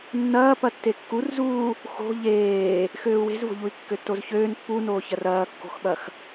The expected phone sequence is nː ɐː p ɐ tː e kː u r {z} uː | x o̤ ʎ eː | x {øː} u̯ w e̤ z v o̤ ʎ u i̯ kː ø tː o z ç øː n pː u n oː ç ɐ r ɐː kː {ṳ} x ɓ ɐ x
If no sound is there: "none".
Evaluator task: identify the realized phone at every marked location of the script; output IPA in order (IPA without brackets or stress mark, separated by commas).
z, øː, o̤